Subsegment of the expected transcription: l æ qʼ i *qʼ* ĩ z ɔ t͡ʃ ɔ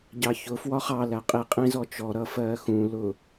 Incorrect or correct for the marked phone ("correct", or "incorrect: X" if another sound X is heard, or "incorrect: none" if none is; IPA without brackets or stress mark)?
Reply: correct